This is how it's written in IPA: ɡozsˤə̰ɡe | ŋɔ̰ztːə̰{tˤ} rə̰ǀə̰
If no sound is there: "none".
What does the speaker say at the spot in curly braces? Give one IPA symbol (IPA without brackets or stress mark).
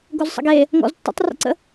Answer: tˤ